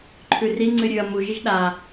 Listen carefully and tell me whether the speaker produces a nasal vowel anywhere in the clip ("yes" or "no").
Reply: no